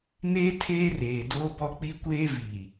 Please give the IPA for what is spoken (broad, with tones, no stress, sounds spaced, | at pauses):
n eː˦ tʰ eː˦ r eː˨ d oː˦ b ɔ˦ k͡p i˦ kʷ eː˦ v i˨